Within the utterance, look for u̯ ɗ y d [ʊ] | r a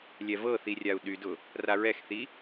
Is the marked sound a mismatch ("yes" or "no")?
no